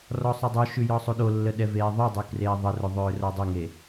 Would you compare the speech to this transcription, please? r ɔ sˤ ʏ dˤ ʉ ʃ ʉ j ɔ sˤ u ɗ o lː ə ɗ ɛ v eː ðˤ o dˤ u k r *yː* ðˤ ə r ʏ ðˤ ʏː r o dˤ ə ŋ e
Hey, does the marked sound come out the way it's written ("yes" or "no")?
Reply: no